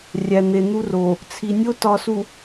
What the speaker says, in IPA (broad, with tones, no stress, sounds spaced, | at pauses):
rʲ æ˨ n̪ e˨ n̪ u˦ r o˨ | t͡sʰ i˨ nʲ o˦ t ɒ˨ s u˨